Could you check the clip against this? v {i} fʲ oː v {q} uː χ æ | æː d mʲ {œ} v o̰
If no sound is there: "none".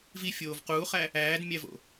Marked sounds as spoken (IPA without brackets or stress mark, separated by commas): i, q, æ